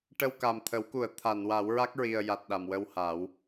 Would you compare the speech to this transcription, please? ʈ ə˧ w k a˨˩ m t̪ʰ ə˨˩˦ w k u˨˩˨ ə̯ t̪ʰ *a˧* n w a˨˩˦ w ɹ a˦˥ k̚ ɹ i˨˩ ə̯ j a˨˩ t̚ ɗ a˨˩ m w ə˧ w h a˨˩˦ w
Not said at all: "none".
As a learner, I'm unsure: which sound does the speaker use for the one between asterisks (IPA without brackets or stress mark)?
a˨˩˨